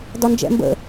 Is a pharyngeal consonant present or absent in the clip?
absent